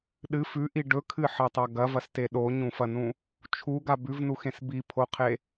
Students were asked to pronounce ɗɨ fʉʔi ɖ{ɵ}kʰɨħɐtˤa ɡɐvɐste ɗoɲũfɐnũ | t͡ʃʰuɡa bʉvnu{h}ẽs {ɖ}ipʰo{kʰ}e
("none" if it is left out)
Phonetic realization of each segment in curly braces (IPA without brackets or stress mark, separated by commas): ɵ, x, b, qʰ